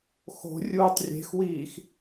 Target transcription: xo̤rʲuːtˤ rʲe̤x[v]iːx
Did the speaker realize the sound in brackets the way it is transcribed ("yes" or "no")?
no